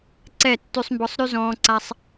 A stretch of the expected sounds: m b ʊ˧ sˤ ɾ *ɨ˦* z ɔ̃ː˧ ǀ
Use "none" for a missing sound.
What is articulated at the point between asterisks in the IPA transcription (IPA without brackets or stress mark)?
y˦